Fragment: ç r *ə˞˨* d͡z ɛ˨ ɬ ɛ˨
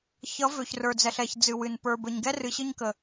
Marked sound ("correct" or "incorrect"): correct